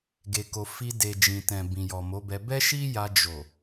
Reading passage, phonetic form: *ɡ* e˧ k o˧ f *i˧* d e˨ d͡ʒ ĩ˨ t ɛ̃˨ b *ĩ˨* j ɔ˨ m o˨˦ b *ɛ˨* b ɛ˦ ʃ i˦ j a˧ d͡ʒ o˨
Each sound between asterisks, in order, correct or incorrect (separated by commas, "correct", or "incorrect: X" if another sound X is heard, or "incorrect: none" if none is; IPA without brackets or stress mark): correct, correct, correct, incorrect: ɛ˧